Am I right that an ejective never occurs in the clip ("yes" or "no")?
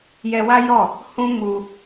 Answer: yes